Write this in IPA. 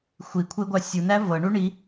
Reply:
xʷi kʷʰeɡʷa sʲunæ vɤɳu ɳi

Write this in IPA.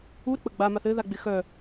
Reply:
u ɾɪk͡pəɡ͡ba maθɘ ðaɡ͡bɪxœ

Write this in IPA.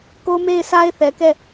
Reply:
ko˦me˦˨ɪ̯sʰa˦ɪ̯ θɛ˨kɛ˦˨

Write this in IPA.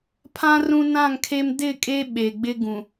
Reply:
pʰã˦ rũ˦nã˦˨ŋkʰe˦m dɪ˦˨kʼe˦ ɓe˨ ɡ͡bɪ˦ɡũ˨

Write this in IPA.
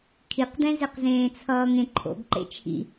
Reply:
kʰiqdɛ̃zeq zẽːt͡sʰʌːŋẽǃʰo̰ɡ ǃḛt͡ʃʰḭ

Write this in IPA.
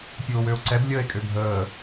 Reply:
pʲʊːwøo̯ǀɛb lʲəːe̯kʼøbʱəː

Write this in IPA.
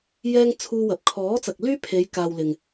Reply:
jɛː˥ŋ t͡sʰuː˥wɐ˨˥p̚ kʰɔː˨˥t͡sɐ˨k̚lyː˥pʰe˨˧j kaː˧wlɪ˨ŋ

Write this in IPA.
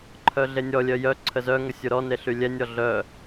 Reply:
ǃʰœɮenʲɔlʲœ jœ ǀʰəzœŋə sʲuɾɔne ɬylʲɛnʲɔ ɮœ

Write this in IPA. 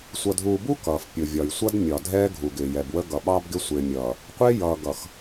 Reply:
sʷʌ˨dʱuː˨bu˦ kʌː˨fpʲʊ˨vʲɒ˨j sʷʌ˦dmʲɒ˨dʱɛː˦ ɡʱu˨ɡɪː˨jɛ˨bwə˦ ɡʌ˨ɓɑː˦b ɡɪ˦sʷɪː˨mʲʌː˨ | qʷɪː˦ jʌː˨ɡʌ˨x

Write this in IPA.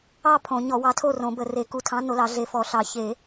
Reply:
ɑ˥˨ pʰõ˨˩˦ɲɔ˨˩˦ wɑ˨˥tʰo˥˨rõ˨˩˦bə˨˩˦ re˨˩˦ku˨˥tʰɑ̃˨˥ no˨˥lɑ˨˩˦ɮe˨˩˦ fɔ˨˩˦ɬɑ˨˩˦ çe˨˩˦

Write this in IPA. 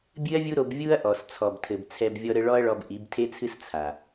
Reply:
bʲɨ˦ɐ̯vʲu˦ɾo˧b vʲu˦ɐ̯ʔɔ˨s t͡sʰɔ˨btʰɘ˨bt͡sʰɛ˧b vʲɔ˦ɾɘ˦ ɭɔ˦ɐ̯ɭɔ˧b ʔi˨˦btʰe˦t͡sʰɨ˦s t͡sʰa˨

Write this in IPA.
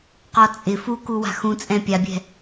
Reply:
qɔt͡sʼɪ fukuwa̤ xũt͡sʼɛ̃ pʲabʲɛ̤

